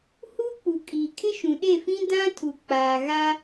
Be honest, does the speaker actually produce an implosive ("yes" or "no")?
yes